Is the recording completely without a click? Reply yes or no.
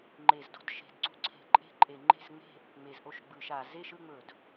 no